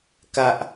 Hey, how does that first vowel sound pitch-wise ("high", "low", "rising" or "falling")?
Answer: high